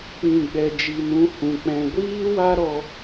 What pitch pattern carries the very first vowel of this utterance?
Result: low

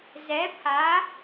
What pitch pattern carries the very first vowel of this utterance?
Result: rising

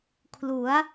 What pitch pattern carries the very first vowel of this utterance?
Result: rising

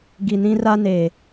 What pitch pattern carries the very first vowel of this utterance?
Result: low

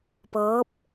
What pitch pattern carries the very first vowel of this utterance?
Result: rising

